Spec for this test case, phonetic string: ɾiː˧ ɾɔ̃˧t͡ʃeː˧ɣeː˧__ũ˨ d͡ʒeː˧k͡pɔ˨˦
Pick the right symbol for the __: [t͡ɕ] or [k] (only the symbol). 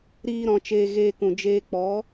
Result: k